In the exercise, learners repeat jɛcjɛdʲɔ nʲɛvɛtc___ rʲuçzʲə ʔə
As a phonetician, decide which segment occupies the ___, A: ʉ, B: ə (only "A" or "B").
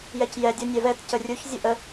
B